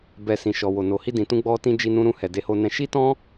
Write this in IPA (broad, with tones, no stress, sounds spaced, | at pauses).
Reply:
b ɛ˨ s ĩ˨ ʃ ɔ˨ w o˨ n o˨ h i˧ d ĩ˨ t ũ˧ ɡ͡b ɔ˧ t ĩ˧ d͡ʒ i˧ n ũ˧ ɾ ũ˧ h ɛ˨ d e˨˦ h o˧ n ɛ̃˧ ʃ i˦ t ɔ̃˦